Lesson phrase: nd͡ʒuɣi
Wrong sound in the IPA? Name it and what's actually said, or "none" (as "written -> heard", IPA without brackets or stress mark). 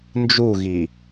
none